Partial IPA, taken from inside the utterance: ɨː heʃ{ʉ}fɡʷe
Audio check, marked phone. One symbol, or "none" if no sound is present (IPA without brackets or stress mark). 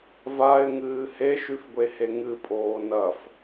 ʉ